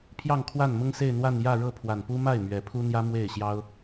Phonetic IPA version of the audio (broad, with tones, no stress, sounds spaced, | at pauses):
pʰ j ɑ˥˧ ŋ kʰ w a˥˩ n m ʊ˥ ŋ s e˥˧ ɪ̯ n̪ w a˥˧ n j ä˥˧ ɻ ɤ˥˩ pʰ w a˨˩ n p u˥ m a˥˩ ɪ̯ m ɥ ɛ˨˩ pʰ u˥ n̪ j ä˥ m w e˥˩ ɪ̯ ɕ j ɑ˥ ʊ̯